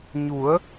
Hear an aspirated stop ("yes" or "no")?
no